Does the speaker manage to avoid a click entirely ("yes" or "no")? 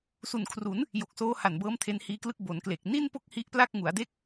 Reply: yes